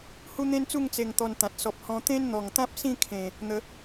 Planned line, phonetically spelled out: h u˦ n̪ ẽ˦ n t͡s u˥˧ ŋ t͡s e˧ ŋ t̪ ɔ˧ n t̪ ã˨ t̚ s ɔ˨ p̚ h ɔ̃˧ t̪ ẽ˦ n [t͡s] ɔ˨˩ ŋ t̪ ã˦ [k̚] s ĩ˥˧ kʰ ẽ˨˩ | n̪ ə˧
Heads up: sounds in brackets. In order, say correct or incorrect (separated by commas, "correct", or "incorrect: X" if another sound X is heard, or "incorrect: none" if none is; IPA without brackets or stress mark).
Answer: incorrect: n̪, incorrect: p̚